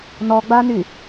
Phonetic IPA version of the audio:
n ɔ ɡ͡b a n y

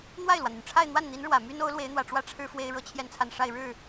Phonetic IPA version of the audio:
n̪ w a˥˩ ɪ̯ l w ä˩ n̪ y˩ n ʈ͡ʂʰ a˥˧ ɪ̯ n̪ w a˥˩ n n̪ i˧˥ n ɻ w ä˨˩ m y˥ n o˧˥ ʊ̯ l w e˧˥ ɪ̯ n̪ w ä˨˩ ʈ͡ʂ w ä˥ ʈ͡ʂʰ ɻ̩˥ f w e˥ ɪ̯ ɻ ɤ˥ t͡ɕʰ j ɛ˥˧ n t͡sʰ a˥˧ n ʂ a˥˧ ɪ̯ ɻ ɻ̩˥˩

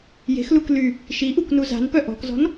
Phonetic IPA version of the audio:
j e̤ x l u k l y | ʃ i ʔ u k n u z a̤ n p œ ʔ ɔ̤ k z ɔ̤ n

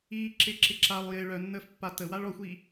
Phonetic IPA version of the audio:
iː ǁ ɪː ǁ ɪ ǁ a lˠ j ɪ ɭ œ nː əː f pː a t ə w a ɭ ɔ xʷ iː

